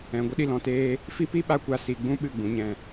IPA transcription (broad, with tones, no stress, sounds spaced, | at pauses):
ɛ̃˨ ɡʷ ə˧ ɗ i˨ l ɔ̃˨ t eː˧ | f i˦ p i˦ ɓ a˦ kʷ a˧ s i˨ ɡ͡b ũ˦ ɓ ɨ˦˨ ɡ͡b ũ˨˦ ɲ ɛ̃˦˨